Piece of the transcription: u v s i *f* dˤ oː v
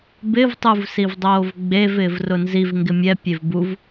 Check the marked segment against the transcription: incorrect: v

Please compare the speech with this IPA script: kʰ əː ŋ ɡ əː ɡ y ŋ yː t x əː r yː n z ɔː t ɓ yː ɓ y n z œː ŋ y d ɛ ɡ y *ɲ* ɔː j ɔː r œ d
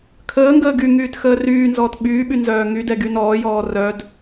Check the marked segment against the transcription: incorrect: n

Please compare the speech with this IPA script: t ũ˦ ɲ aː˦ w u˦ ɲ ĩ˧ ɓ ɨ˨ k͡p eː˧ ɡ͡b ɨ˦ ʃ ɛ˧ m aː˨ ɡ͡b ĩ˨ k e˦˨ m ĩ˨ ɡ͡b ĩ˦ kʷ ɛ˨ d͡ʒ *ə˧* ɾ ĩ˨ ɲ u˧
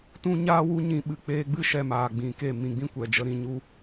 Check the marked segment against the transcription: correct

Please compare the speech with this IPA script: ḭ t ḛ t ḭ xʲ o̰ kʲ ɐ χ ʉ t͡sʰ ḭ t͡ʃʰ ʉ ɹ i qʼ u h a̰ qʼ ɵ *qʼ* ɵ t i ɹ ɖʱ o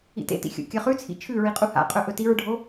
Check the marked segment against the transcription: incorrect: ʔ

